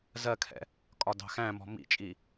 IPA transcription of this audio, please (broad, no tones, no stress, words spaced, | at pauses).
zɜkʰɛ̰ | kʼɒdɑ̤xæ̃mɔ̤ mḭt͡ʃʼi